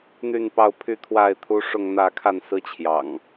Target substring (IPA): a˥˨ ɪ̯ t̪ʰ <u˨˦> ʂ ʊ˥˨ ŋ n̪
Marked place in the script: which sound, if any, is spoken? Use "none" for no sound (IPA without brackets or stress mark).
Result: u˦